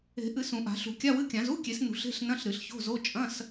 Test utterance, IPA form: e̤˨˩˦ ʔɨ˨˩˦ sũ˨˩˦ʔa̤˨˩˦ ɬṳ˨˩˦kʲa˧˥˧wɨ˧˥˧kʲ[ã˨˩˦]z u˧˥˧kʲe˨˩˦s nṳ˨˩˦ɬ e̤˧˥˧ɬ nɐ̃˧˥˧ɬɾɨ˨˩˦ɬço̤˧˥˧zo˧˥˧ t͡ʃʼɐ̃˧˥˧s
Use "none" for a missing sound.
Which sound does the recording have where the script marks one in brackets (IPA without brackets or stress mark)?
ã˨˩˦